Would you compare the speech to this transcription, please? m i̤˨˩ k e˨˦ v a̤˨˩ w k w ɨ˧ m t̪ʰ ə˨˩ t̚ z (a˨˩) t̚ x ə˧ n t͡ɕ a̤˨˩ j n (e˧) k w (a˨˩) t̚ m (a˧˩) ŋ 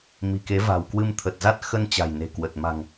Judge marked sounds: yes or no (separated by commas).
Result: no, no, no, no